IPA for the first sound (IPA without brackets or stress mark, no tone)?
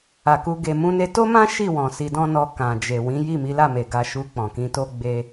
a